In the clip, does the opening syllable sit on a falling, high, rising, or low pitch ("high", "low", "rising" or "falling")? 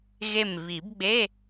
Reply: falling